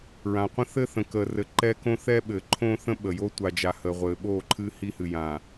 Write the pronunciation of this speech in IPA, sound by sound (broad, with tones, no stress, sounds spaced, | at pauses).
ɹ ã˨ qʷ ə̃˦ θ ɘ˦ θ ə̃˨ k əː˨ r ɘ˨ ǃ ɛ˦ k õ˦ θ ɛ˦ ɓ ɘː˨ ǃʰ õː˦ θ ə̃˦ ɓ ə˨ j o˦ tʷ a˨ d͡ʒ a˨ h əː˨ ʁʷ ɘː˨ ɓ oː˦˨ ǃʰ ɨː˦ h i˦ h ɨ˨ j ã˨